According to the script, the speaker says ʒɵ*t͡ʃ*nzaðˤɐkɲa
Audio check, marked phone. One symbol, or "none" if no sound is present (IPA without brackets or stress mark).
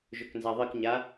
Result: k